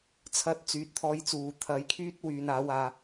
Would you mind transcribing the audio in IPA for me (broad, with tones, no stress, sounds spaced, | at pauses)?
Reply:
t͡sʰ ɐ˨˥ t̚ t͡s yː˨˥ t̚ t̪ʰ ɔː˧ j t͡s uː˨ t̪ʰ ɐ˨ j kʰ yː˥ t̚ w yː˨˧ n aː˨˥ w aː˧